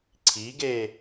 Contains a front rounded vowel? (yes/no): no